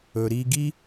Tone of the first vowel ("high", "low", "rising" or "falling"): low